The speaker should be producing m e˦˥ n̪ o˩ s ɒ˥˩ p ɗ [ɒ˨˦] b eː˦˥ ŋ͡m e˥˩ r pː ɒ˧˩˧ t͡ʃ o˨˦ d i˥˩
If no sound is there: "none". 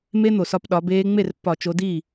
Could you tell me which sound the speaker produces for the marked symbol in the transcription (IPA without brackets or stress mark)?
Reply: ɒ˨˦